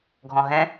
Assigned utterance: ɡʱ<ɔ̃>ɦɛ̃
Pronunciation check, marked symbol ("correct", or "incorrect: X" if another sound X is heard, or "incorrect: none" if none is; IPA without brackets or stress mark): correct